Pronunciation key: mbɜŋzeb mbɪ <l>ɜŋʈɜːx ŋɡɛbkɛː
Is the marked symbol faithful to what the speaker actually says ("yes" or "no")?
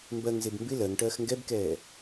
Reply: yes